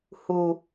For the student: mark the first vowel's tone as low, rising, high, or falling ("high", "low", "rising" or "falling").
low